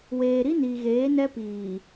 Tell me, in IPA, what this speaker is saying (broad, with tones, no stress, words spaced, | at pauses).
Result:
weː˨ɾi˦ ni˨ɣeː˨˦nɛ˦ piː˨